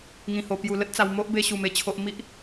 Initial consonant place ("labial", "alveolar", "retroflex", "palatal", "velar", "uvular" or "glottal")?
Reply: velar